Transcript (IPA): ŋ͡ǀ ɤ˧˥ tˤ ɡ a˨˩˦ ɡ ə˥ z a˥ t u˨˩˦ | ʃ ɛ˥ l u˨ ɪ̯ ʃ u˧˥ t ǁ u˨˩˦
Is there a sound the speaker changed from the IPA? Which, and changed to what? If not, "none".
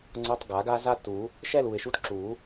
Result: ə˥ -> a˥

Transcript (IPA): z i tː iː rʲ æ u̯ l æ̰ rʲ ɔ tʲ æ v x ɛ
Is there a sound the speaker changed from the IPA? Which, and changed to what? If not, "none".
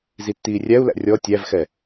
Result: none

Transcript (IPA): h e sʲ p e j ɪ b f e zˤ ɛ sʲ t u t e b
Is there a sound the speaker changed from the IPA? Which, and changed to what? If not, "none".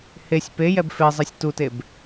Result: ɪ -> ɛ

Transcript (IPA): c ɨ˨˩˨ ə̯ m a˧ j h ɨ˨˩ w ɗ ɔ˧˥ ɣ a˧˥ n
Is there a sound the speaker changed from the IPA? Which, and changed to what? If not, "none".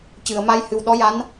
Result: ɣ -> j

